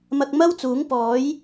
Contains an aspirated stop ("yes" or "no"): no